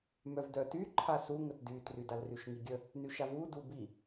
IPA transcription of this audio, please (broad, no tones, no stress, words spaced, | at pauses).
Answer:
mœvdœty ǃʰasu ŋətdytry dalryʃŋiɡʲə | nyʃavu dubi